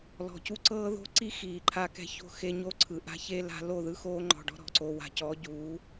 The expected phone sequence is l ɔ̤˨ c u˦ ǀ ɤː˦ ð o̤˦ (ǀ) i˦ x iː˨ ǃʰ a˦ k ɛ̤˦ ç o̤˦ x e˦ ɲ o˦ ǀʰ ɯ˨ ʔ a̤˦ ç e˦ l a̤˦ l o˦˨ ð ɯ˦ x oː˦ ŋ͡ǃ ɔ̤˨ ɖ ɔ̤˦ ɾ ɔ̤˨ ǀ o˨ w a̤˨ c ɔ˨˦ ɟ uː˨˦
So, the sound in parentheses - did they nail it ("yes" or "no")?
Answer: yes